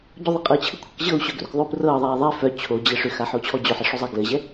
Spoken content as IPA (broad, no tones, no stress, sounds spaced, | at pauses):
ɟ o ðˤ ɘ qʼ ɤ t͡ɕʰ ɘ kʷʰ ɘ k ʑ ɤ u̯ ɕ œ ɡ r ʏ k ðˤ ʏ u̯ p r ɤː ðˤ ɛː ðˤ ɛ f œ t͡ɕʰ o d͡ʑ ɘ ʂ ʏ x a ħ o t͡ɕʰ ɔ d͡ʑ œ ħ ɘ ʂ ʏ zˤ a ɡ l ɘ ʑ ɛ